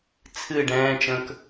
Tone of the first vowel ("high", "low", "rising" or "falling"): falling